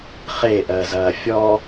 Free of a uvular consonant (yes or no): no